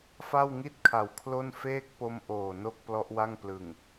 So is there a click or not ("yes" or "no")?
no